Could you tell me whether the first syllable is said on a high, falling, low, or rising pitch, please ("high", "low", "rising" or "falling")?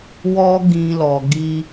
high